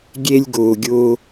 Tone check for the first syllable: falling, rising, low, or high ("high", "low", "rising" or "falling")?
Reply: high